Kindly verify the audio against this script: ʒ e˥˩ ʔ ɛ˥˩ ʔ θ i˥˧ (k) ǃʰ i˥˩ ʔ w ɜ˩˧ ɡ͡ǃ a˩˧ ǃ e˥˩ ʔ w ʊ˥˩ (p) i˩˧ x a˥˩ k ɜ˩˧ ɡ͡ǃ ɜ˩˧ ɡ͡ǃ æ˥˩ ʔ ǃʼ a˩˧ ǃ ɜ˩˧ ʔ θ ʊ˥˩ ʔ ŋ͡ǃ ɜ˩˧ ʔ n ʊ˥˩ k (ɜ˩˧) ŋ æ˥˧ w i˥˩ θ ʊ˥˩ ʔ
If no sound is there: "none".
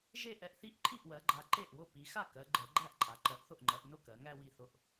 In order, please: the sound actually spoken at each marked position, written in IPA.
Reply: ʔ, p, ɜ˩˧

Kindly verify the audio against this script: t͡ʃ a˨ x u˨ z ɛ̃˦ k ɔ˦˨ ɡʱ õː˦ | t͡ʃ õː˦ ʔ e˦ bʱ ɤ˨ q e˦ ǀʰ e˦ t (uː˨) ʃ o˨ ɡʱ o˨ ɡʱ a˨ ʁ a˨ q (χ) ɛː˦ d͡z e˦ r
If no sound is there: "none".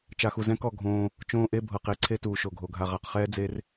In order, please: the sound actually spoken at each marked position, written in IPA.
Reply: uː˨, χ

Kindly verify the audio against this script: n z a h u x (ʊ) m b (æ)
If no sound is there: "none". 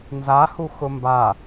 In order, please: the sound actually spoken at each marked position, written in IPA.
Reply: ʊ, a

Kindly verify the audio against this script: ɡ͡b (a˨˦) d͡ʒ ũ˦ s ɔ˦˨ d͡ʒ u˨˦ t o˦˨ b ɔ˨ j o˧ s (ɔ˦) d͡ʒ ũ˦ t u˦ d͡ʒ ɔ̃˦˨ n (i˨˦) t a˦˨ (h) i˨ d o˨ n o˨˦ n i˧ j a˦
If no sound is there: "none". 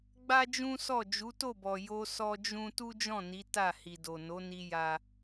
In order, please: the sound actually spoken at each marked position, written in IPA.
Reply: a˦, ɔ˦, i˨˦, h

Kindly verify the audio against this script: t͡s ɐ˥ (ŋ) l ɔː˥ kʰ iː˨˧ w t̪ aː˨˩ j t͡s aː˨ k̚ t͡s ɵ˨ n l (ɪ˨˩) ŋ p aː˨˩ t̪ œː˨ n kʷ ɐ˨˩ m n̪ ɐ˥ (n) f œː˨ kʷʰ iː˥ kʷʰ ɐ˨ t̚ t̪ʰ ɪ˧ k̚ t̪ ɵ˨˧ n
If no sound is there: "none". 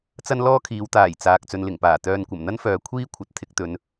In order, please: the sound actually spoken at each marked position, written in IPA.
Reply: n, ɪ˨˩, n

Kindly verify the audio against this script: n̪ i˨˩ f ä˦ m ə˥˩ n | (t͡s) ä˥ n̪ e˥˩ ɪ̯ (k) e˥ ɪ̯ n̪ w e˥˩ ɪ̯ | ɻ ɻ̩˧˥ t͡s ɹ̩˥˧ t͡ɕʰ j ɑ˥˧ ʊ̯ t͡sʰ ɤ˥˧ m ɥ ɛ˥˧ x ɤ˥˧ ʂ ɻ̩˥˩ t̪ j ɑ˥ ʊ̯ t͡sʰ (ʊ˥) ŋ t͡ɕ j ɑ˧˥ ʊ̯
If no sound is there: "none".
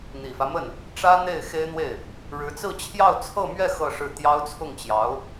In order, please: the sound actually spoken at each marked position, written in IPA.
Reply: ʈ͡ʂ, x, ʊ˥˩

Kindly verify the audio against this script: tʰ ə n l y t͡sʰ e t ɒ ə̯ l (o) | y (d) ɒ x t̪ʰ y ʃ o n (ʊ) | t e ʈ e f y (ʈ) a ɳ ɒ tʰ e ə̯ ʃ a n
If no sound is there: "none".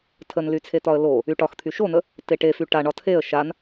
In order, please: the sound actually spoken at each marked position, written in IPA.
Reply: o, ʈ, ə, ʈ

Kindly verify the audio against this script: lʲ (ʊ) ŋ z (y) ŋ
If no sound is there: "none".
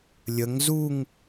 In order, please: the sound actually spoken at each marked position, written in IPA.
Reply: ə, u

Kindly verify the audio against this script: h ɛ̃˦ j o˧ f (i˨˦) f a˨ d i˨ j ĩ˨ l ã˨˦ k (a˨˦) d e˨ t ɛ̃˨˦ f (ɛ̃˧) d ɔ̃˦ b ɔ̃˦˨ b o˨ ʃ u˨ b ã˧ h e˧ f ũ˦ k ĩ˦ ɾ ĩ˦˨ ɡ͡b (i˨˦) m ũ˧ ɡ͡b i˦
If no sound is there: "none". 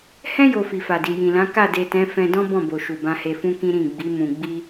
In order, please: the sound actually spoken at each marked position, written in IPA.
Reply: i˨, a˦˨, ɛ̃˧, i˨˦

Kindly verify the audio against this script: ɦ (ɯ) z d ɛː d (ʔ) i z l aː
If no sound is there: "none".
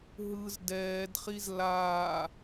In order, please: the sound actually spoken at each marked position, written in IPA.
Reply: ɯ, χ

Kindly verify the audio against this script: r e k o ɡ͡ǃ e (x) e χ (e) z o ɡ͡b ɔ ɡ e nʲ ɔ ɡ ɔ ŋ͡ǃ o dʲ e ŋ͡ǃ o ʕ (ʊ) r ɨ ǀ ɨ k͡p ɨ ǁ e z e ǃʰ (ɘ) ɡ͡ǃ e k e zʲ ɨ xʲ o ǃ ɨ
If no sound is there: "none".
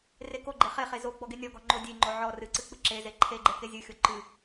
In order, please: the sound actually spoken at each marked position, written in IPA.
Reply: χ, e, ɔ, e

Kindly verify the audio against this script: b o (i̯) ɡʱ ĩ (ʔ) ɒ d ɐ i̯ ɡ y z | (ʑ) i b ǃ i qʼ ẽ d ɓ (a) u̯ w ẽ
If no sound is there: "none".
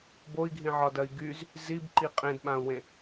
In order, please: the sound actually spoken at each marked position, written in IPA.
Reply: i̯, ʕ, z, ã

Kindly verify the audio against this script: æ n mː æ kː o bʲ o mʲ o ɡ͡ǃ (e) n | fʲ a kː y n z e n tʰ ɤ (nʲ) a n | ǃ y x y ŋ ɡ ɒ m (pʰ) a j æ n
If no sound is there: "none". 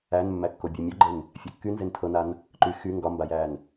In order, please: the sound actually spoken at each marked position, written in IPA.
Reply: e, n, b

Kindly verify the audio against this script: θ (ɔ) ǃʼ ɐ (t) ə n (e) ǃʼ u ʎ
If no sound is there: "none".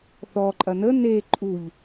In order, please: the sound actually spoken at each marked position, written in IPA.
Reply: ɔ, n, e

